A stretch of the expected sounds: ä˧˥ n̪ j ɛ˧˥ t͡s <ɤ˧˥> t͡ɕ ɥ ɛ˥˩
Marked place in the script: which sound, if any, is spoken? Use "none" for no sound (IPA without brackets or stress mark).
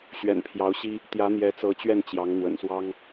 ɤ˧˥